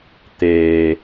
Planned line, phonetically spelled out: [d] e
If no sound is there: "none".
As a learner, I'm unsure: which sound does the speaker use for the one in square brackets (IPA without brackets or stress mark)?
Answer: t̪